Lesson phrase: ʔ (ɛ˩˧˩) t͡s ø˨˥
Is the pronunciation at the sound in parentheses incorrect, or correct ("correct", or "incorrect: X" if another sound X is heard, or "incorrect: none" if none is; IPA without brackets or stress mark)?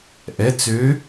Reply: correct